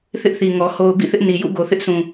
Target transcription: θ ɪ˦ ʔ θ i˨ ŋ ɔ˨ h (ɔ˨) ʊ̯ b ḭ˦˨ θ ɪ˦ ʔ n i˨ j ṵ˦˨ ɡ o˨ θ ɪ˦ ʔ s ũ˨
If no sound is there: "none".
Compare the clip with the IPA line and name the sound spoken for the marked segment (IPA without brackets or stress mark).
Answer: o˨